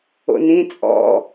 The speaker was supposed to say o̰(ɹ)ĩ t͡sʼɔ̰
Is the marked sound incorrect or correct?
incorrect